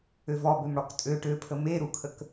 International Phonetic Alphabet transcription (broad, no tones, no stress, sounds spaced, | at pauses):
ø v ɔ b ø m ɽ ɔ k tʼ ø ʈ ø pʰ ə m e ɾ u kʰ ə k